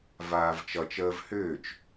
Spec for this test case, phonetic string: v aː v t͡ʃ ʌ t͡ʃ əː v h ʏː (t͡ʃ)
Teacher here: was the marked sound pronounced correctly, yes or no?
yes